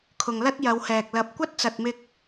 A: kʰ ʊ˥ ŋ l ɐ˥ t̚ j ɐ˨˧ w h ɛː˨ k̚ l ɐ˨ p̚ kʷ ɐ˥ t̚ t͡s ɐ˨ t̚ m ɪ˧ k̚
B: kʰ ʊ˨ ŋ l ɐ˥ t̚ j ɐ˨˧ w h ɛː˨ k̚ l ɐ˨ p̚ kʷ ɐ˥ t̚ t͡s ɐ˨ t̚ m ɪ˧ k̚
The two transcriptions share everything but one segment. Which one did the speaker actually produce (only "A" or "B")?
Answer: B